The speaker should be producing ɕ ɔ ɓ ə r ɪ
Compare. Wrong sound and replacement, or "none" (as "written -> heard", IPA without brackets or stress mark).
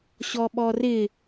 ə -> ɔ